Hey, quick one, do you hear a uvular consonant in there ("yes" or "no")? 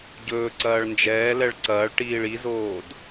no